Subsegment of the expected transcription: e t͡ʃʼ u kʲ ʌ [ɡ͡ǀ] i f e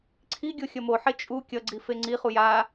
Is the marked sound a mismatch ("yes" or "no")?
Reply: no